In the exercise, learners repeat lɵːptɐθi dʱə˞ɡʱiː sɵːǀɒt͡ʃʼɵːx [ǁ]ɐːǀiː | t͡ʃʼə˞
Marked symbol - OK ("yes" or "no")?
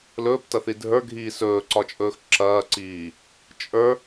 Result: yes